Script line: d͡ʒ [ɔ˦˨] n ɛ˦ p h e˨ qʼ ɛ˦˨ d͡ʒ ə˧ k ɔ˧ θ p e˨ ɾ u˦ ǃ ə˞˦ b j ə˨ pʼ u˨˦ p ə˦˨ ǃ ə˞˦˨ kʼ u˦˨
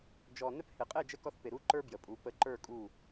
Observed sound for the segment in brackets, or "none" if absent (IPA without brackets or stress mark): ɔ˨